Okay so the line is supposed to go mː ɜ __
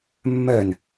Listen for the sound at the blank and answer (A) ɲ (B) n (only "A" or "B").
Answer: B